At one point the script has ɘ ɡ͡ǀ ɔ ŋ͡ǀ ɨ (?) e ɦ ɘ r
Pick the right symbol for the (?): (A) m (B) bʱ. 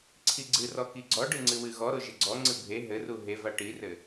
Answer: B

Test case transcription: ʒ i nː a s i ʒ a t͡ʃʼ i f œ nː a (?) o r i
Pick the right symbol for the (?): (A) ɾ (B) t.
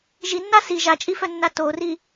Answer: B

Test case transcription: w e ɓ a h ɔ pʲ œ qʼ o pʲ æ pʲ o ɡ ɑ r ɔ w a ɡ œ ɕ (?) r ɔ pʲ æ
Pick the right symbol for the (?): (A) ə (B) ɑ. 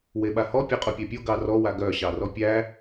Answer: B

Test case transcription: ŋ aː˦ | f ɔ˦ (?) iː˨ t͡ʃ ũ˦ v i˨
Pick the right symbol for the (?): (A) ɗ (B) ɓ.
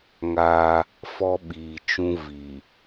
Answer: B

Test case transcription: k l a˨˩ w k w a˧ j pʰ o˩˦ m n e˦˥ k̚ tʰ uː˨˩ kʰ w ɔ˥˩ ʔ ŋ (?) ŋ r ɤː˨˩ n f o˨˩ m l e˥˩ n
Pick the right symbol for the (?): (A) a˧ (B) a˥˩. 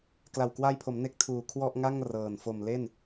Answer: B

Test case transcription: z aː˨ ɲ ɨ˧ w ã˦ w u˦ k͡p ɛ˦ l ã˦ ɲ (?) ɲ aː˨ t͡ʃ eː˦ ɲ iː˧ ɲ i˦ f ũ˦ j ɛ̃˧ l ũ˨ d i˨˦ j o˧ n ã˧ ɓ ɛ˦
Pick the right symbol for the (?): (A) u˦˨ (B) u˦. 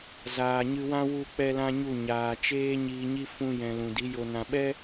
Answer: A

